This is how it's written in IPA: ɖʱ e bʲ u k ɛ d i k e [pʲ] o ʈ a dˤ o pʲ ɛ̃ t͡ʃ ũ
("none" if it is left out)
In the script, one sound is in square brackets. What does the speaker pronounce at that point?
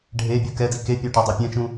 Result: pʲ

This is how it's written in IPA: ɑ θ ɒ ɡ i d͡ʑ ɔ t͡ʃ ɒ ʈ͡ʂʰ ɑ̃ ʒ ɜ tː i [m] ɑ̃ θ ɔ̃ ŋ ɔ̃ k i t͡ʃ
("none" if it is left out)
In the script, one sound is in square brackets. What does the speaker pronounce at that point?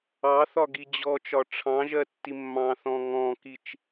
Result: mː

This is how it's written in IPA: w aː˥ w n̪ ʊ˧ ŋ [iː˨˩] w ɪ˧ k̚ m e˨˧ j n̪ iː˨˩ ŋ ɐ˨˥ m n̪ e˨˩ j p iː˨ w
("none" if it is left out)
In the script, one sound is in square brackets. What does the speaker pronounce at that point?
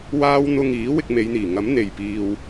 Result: iː˨˥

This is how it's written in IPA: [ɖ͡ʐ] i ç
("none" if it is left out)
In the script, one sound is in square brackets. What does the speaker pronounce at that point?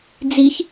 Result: d͡z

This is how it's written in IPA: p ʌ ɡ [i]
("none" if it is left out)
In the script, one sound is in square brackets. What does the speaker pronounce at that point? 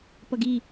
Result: i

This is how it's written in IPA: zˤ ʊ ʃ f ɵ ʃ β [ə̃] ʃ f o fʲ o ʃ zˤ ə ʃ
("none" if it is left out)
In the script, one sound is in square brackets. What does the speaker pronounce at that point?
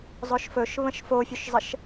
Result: ə̃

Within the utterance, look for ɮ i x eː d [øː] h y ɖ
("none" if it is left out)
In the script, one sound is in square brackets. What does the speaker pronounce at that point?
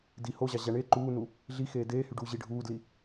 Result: eː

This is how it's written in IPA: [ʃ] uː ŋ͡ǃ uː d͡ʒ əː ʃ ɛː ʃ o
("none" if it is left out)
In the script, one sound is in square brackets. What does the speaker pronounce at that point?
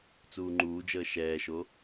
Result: t͡s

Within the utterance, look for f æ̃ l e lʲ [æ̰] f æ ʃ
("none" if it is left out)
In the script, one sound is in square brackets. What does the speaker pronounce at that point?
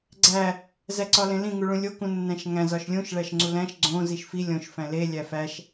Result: æ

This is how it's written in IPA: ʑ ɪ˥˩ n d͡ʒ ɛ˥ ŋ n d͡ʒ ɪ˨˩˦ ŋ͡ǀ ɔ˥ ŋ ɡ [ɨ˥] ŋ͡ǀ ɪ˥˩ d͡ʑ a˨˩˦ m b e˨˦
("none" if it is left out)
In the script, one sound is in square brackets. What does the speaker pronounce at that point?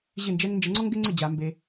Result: ɪ˥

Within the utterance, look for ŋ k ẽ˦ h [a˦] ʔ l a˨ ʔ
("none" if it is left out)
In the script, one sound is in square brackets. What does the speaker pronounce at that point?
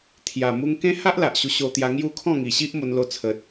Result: a˦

